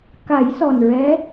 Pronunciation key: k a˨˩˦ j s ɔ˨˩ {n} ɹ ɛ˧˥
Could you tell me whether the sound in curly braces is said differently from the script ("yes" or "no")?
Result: no